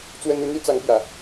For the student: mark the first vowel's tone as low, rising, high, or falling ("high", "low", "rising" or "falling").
high